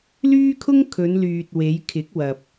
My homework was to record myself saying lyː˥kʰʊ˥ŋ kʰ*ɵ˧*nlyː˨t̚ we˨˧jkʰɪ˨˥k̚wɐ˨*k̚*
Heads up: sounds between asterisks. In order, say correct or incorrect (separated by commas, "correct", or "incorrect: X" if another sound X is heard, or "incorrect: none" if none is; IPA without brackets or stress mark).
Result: incorrect: ɵ˨˧, incorrect: p̚